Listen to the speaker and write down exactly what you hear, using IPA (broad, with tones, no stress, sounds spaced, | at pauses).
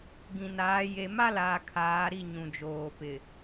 ɡ ĩ˨ n aː˨˦ j e˨ m a˦ l aː˨ kʰ aː˨˦ ɾ i˦˨ ɲ ũ˨ d͡ʒ oː˨ p ɪ˨